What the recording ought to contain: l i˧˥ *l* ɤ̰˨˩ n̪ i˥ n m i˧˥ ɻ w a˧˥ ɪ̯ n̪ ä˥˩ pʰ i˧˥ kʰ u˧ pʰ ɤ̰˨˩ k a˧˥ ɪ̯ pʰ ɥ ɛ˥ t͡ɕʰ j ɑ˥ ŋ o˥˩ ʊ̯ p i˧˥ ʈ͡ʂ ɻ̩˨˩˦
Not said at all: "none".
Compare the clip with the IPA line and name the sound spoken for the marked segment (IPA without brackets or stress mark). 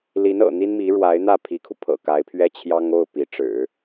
n